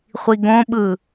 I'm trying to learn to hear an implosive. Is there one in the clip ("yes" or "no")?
yes